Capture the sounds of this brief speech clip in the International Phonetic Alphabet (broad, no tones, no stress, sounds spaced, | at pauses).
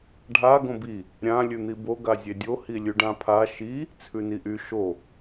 ɖʱ a ɡ õ b i | ɾʲ ã lʲ ʉ n̪ i b o ɡ a zʲ e dʲ o h i lʲ ʉ ɖ ã pʰ a ʃ i | t͡sʰ ʉ n i ʔ y ʃ o